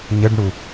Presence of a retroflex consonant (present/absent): present